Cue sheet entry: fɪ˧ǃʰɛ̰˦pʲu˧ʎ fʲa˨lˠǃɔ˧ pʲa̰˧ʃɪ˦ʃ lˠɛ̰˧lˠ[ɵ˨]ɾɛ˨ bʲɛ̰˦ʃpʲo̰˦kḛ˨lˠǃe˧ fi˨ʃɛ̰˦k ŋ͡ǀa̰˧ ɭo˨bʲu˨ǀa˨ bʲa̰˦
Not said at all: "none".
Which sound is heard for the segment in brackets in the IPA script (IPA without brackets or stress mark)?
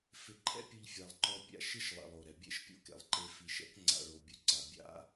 o˨